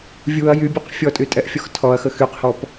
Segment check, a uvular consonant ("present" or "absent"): present